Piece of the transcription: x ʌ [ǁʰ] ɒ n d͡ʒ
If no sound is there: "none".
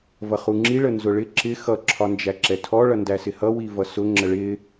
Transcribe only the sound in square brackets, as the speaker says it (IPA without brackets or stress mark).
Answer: ǁʰ